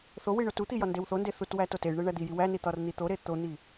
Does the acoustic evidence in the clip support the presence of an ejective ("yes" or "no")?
no